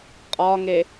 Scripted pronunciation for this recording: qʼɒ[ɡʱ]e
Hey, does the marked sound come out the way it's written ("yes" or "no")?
no